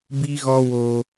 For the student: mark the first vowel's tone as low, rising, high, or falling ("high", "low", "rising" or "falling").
high